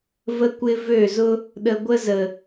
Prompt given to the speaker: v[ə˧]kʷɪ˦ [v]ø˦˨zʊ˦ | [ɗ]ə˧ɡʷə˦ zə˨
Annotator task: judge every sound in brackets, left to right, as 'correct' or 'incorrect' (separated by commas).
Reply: incorrect, correct, correct